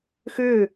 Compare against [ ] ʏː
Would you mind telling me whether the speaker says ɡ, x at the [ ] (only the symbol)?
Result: x